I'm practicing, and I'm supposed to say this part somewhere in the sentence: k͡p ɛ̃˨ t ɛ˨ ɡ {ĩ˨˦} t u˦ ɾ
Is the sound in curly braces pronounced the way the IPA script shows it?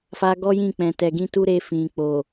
no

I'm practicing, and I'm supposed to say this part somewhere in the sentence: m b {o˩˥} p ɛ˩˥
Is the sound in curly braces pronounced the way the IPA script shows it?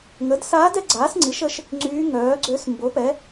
yes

